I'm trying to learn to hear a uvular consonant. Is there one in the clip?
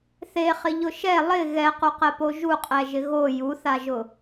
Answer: yes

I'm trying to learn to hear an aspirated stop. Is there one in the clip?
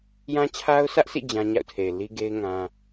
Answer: yes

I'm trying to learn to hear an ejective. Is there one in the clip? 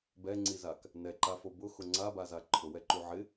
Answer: no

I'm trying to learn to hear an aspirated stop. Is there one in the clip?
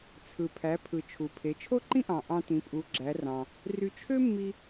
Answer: yes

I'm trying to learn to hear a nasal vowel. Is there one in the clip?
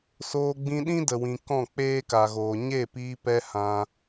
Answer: yes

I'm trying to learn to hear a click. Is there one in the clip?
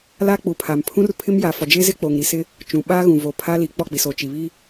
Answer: no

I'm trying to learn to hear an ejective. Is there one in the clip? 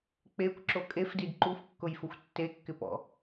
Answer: yes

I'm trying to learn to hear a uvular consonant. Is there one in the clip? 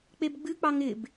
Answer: no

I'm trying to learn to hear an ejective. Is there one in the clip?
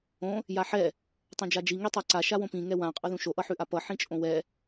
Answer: yes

